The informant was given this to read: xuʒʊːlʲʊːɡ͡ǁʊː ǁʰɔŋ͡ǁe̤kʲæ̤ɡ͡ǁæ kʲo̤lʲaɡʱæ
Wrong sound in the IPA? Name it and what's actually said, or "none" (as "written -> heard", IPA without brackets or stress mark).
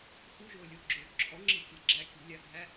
none